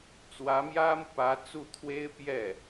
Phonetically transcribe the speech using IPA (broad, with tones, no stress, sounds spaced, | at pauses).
t͡s w ä˧˥ m j ä˥ m u˨ p ä˧˥ t͡s u˥˩ t̪ʰ w e˥ ɪ̯ p j ɛ˥˩